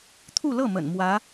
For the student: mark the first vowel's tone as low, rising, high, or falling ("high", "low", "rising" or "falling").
falling